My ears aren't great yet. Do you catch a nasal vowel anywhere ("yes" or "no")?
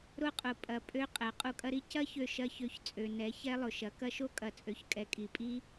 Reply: no